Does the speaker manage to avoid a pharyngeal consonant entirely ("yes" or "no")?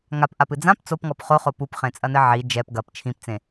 no